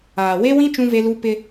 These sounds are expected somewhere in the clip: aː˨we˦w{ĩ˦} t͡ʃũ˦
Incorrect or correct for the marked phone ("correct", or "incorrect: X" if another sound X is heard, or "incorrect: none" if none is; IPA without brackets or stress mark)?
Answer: correct